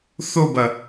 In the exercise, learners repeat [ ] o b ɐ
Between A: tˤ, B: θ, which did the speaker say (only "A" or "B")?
B